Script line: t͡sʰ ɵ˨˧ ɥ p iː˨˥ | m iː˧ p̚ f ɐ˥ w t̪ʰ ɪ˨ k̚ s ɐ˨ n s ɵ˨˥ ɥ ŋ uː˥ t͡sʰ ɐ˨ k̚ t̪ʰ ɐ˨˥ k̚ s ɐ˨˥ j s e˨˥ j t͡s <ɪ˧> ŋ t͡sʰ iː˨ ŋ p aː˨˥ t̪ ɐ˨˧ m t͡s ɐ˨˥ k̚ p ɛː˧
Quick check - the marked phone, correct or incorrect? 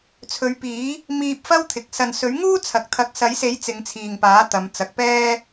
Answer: incorrect